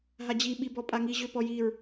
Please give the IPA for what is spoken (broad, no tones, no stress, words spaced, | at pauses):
ɦad͡ʑi ɓibɔpʼaŋi ʑøpɔjiɹ